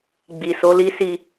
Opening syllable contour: low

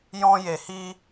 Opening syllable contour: high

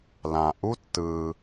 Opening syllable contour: low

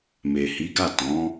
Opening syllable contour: low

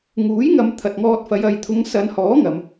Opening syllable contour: rising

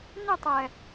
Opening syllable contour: falling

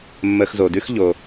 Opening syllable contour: low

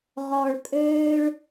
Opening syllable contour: low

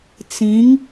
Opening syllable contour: rising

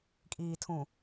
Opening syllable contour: low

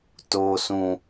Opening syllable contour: low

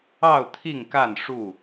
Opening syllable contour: falling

